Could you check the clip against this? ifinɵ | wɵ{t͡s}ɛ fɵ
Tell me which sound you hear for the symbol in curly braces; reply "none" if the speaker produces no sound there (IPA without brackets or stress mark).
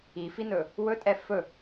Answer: tʼ